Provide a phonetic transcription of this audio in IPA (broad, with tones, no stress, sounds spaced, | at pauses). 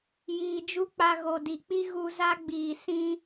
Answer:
j iː˨ d͡ʒ u˦ k͡p a˧ ɣ o˨ d i˨ k͡p i˦ ɣ u˧ z a˦ ɡ͡b iː˨ s ĩ˧